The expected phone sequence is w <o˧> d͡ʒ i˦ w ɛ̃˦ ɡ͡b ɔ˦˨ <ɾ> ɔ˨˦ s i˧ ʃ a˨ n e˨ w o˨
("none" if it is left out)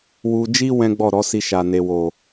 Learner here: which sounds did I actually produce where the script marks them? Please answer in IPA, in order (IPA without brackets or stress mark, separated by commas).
u˧, ɾ